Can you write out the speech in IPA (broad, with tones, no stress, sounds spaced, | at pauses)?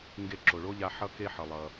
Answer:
ŋ ɡ e˧ ǁ o˩ ɭ o˥ ʎ a˧ ħ ʌ˥ k e˥ ħ ʌ˩ lˠ ʌ˩